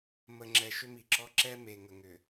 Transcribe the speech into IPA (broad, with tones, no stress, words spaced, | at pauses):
mə˨ŋ͡ǁɛ˨ ʃʏ˦mi˨ǁɔ˦ ǁɛ˦me˨ ŋə˨ŋʏ˨